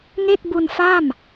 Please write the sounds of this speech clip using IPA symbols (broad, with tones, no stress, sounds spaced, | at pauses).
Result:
ŋ e˥˩ k̚ b u˧ n f a˥˩ m